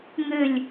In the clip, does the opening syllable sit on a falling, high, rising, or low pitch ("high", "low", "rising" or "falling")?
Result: falling